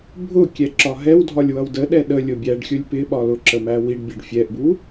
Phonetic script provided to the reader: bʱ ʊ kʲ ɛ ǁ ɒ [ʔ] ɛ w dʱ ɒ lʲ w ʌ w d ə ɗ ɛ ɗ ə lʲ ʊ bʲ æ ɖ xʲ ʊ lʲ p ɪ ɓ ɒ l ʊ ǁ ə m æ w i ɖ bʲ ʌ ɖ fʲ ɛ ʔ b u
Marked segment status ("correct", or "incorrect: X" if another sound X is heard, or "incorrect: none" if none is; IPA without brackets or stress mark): incorrect: ɦ